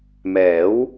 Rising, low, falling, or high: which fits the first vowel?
rising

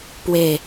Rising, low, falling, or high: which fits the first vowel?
falling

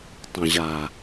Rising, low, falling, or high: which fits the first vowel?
low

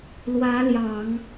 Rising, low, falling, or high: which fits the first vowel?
rising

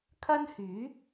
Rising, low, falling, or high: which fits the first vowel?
high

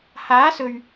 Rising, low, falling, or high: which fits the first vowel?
rising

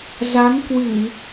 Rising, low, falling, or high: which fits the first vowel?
rising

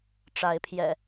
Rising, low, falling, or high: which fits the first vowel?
rising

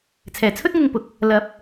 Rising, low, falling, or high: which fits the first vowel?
low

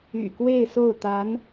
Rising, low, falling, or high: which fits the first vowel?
low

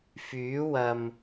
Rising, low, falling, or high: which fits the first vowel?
rising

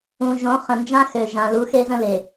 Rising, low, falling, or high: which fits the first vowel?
low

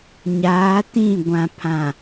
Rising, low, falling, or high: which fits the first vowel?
rising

